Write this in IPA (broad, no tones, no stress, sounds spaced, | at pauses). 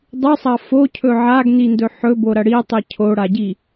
dˤ ʉ sˤ ɐ f o cʰ ɵ ʕ a ɡ n i n d ɵ ħ ɵ b o ɾ ɐ ɽ i tˤ i cʰ o ɽ a ɟ i